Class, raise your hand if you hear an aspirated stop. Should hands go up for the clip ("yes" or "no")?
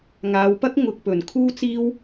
yes